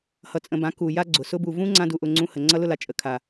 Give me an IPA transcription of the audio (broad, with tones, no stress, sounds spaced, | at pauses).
h ʌ˧ t͡sʼ ə̃˧ b ã˨˦ k u˨ j a˦ ɡ͡ǀ ʊ˨ s ʊ˧ b u˨ v ũ˦ ŋ͡ǀ ã˦ d u˧ ʔ ʊ˧ ŋ͡ǀ ũ˧ h ə˨ ŋ͡ǀ ʌ˦ l ʊ˦ l a˨ t͡ʃʼ ə˨ kʰ a˨